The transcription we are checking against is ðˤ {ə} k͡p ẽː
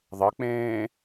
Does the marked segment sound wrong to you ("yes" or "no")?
no